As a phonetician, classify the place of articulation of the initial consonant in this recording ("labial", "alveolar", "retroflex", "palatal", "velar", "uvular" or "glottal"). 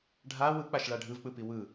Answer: retroflex